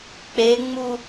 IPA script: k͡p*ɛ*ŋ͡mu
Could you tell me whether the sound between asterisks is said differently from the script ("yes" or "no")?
yes